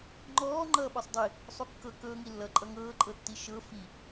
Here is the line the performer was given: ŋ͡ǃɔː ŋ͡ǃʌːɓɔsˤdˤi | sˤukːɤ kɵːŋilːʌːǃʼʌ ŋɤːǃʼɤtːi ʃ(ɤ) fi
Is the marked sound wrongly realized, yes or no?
no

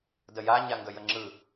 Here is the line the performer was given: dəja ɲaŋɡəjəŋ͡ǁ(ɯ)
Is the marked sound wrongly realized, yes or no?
no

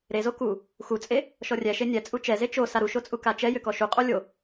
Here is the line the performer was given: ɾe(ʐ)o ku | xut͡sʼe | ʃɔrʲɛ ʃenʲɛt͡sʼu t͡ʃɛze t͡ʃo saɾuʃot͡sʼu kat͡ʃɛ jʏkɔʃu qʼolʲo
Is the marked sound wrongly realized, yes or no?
yes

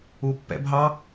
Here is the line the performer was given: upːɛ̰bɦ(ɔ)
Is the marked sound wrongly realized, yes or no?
yes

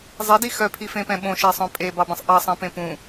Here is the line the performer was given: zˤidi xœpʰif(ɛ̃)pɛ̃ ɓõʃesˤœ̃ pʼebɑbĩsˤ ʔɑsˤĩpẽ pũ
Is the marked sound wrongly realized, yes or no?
yes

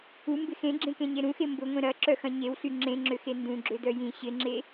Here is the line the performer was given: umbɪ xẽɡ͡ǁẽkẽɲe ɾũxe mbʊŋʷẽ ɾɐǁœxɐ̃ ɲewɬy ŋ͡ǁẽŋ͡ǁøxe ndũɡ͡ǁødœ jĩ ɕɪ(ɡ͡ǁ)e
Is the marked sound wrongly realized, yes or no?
yes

